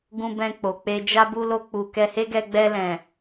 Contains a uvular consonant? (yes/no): no